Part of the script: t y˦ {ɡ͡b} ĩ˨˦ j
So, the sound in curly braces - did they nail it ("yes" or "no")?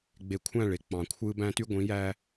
no